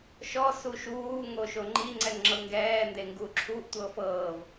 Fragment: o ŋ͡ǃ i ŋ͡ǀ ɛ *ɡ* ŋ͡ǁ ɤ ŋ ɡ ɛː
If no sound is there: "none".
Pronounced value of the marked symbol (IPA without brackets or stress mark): ŋ